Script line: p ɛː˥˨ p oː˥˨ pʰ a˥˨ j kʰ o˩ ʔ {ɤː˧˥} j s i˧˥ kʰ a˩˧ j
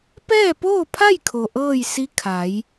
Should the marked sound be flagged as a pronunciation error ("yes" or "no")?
yes